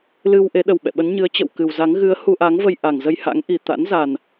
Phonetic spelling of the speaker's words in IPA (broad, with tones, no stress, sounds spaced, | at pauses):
l ɨ˧ w ʔ e˨˦ ɗ ə˨˩ w ɓ ɛ̰˧˨ ɓ ə˨˦ n ɲ ɨ˨˦ ə̯ t͡ɕ ə̰˧˨ w k ɨ˨˩ w z a˨˦ ŋ ɣ ɨ˨˦ ə̯ h u˧ ʔ a˨˦ ŋ v ə˧ j ʔ a˨˩ ŋ z ə˧ j h a̰˧˥ ŋ ʔ i˨˩ t̪ a̰˧˥ n z a˨˩ n